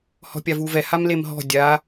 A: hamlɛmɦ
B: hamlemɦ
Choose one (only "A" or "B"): B